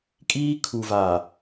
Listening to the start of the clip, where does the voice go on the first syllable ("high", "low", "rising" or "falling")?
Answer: high